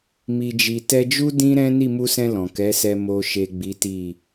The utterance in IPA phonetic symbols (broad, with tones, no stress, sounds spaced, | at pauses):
m i˨ d͡ʒ i˨ t ɛ˧ d͡ʒ u˦ d ĩ˦ ɾ ɛ̃˦ n i˦˨ m u˧ s ɛ̃˧ l ɔ̃˨ k ɛ˨˦ s ɛ˧ m o˨ ʃ e˨ ɡ͡b i˨˦ t i˦˨